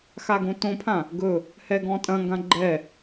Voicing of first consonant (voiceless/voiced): voiceless